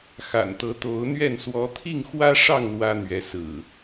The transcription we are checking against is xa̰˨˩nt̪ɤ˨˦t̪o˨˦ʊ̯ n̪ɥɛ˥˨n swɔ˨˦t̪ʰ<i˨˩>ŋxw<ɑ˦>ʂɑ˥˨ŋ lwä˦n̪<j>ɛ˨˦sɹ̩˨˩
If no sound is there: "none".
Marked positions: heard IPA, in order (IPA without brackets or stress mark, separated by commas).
i˥˨, ä˦, ɥ